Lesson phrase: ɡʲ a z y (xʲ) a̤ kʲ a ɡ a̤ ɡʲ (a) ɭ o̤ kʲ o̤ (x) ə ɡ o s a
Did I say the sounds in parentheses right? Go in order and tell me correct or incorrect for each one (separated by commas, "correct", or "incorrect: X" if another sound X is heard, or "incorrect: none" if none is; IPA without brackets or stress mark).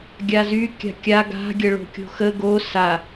incorrect: kʲ, incorrect: ə, correct